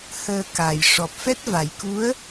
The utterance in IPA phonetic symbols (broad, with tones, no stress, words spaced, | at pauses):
həː˧ka˨˩j ʂɔ˨˩p̚fɛ˦˥t̚ va˨˩˨jku˧˥ə̯